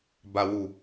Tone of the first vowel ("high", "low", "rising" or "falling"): low